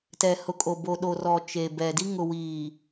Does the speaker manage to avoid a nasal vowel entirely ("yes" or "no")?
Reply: yes